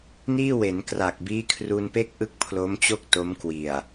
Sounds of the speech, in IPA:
niː˥˩we˩˦nkra˨˩k̚ biː˦˥kʰru˧npe˥˩k̚ ʔɯ˥˩k̚pʰlo˦˥mt͡ɕo˥˩k̚ to˦˥mkwi˨˩a̯

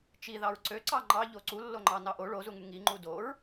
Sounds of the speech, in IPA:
t͡ʃi ðɑɹǀøǀɑ ŋ͡ǃɑ ʎoǀulːo ŋ͡ǃɑnɑʔo ɭozuŋy ŋiŋ͡ǃu doɹ

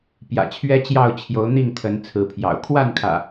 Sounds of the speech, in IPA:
pjä̰˨˩t͡ɕʰɥɛ˦t͡ɕjɑ˥˨ʊ̯ t͡ɕʰjo˨˦ʊ̯n̪i˥˨ŋt̪ʰə˨˦n t͡sʰɹ̩˨˦pʰjɑ̰˨˩ʊ̯ kʰwa˥˨nkʰä̰˨˩

